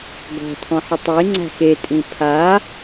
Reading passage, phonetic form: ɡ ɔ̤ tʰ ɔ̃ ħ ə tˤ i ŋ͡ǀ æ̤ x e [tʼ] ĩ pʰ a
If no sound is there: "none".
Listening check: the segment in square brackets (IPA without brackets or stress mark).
tʼ